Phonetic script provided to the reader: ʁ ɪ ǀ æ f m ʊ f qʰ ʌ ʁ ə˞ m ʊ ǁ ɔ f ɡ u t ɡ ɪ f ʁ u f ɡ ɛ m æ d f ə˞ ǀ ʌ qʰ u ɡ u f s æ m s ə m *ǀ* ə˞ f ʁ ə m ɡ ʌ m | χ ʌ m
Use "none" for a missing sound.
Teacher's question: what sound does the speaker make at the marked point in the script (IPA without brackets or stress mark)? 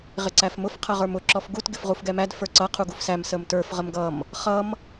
t